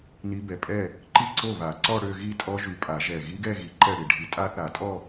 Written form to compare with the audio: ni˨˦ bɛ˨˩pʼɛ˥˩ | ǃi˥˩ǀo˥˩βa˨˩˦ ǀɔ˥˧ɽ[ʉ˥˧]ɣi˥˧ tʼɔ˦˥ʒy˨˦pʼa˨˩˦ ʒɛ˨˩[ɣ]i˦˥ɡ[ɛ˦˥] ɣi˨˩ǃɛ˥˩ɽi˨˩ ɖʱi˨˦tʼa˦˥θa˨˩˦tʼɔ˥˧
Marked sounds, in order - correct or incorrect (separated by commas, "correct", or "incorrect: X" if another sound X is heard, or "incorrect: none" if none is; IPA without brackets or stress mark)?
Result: incorrect: ø˥˧, correct, incorrect: ɛ˥˧